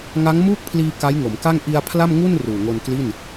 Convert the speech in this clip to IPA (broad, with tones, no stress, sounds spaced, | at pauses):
ŋ a˦˥ ŋ m uː˥˩ k̚ pʰ l iː˧ k a˦˥ j ŋ o˩˦ m k a˥˩ ŋ ʔ i˧ a̯ pʰ l a˥˩ m ŋ u˥˩ n r uː˨˩ ŋ o˧ n k l i˥˩ n